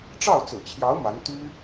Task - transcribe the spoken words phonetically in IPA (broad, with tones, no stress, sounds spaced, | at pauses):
ʈ͡ʂ ɑ˥˩ ʊ̯ t͡s ɹ̩˨˩ t͡ɕʰ j ɑ˧˥ ʊ̯ m a˧˥ n t̪ y˥